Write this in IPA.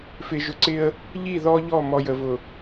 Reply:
fɪ˨ʒʊ˨ǀɪ˦ə̯ | ʎi˦˨ ðɔ˦ʎɔ˦˨ mɔ˨jə˨vʊ˨

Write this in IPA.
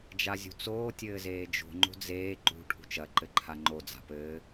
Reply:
d͡ʒazʲṳt͡soː tʲɘːzeːd͡ʒo̤ ŋ͡ǃo̤d͡zeː ǃṳ ʈʰṳt͡ʃɐ ǃɘǃʰaŋ͡ǃo d͡za̤pɘː

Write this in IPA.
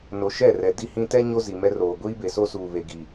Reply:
no˨ʃɛ˦˨rɛ˨ di˦hĩ˦ tɛ˦ ɲo˦ zi˨mɛ˦ roː˨ ɡʷiː˦be˨so˦ suː˨βe˨ɡi˨

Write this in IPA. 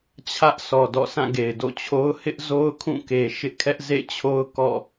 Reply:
t͡ɕʰä˦ʔ sʰɔ˨dɔ̰˦˨ sã˦˨ɡe˨ɪ̯do̰˦˨t͡ɕʰo˦ʊ̯ hɪ˦ʔzo˦ʊ̯ kʰũ˦˨ke˨ ʃɪ˦ʔkʰɛ˦ʔzḛ˦˨t͡ɕʰo˦ʊ̯ kɔ̰˦˨

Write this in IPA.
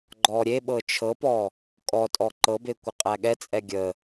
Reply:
ɡ͡ǃɔɾʲeɓɤ t͡ʃʰɤpɔ | kʼɔtʼɔ ǃɤbe kʷɘqʼæɠɛt͡sʼɛ ɡʲə

